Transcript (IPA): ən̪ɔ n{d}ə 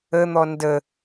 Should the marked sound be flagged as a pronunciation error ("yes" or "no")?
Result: no